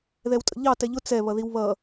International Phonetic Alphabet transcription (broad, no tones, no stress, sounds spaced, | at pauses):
ð ɛ w tʼ ə̰ ʎ ɑ t ɛ ʎ ʊ t͡s ɛ β ʌ ð i w β ʌ